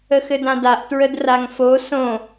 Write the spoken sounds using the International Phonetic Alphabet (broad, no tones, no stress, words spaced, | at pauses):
əxɘdãdaʔ tɹədraŋfo sõ